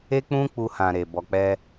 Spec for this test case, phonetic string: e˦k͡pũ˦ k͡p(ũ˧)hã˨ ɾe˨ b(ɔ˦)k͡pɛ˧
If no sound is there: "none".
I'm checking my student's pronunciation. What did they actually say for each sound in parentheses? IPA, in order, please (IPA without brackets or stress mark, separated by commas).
u˧, ɔ˨